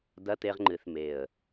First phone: d̪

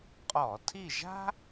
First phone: qʼ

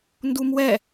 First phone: n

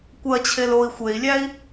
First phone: kʷ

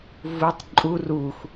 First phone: v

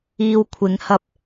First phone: iː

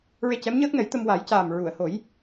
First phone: ɹ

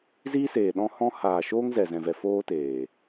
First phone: z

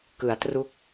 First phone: k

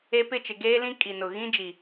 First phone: e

